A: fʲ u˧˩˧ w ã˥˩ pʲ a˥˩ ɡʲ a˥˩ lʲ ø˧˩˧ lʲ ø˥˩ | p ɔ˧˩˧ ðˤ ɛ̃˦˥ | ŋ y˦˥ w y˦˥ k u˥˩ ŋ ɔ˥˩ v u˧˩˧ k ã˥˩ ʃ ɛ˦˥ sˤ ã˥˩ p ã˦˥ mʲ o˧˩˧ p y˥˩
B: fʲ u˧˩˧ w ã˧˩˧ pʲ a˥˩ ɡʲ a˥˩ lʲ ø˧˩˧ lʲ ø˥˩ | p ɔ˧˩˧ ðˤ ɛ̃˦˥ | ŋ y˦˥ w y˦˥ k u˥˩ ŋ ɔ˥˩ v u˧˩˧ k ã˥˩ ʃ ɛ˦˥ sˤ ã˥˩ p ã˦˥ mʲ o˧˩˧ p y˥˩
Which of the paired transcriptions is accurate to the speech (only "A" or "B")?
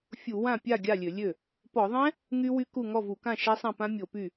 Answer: A